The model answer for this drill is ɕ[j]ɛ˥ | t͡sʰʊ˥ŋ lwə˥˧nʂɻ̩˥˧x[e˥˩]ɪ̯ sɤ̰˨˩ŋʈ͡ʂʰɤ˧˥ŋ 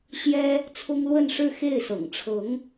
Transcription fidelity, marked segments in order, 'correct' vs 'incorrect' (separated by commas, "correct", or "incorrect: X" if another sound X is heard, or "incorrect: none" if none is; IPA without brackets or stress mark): correct, correct